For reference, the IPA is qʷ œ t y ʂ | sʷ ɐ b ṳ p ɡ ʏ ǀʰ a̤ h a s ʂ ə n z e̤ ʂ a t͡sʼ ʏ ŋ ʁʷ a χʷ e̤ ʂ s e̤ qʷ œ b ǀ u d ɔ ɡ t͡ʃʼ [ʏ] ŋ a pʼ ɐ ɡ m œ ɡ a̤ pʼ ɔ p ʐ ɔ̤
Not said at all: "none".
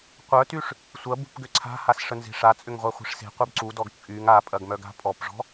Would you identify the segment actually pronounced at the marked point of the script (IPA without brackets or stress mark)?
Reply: y